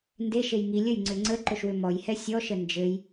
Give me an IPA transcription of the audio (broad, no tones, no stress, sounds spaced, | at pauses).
n d e ʃ e j ŋ i lʲ ə j ŋ͡ǀ ʏ ŋ͡ǀ ə ǃ ɵ ʃ w ʏ m ɔ j h ɛ sʲ ɔ ʃ ə n d͡ʒ ɘ j